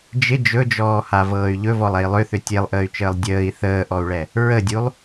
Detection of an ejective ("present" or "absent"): absent